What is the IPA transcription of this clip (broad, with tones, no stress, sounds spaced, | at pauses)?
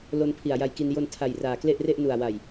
l o˧ n pʰ i˨˩ a̯ j a˧ j k i˧ n j o˧ n tʰ a˨˩ j r aː˨˩ k l e˥˩ ʔ r e˥˩ ʔ n u˨˩ a̯ w a˨˩ j